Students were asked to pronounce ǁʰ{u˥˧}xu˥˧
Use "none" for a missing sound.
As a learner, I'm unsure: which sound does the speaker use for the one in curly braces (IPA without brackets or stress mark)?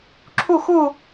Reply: u˥˧